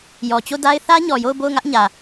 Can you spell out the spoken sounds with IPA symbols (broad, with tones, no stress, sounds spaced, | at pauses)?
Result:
j ɔ˨ t͡ɕ o˦˨ d a˦ ɪ̯ θ ä˦ ɲ ɔ˨ j o˦˨ ʊ̯ b o˦˨ ʊ̯ ŋ ä˦ ʔ ɲ ä˨